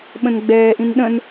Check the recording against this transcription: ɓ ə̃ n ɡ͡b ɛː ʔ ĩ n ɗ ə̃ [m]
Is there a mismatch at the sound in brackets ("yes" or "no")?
yes